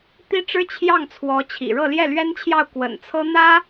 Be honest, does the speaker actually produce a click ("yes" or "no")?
no